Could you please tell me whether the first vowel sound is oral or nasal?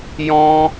nasal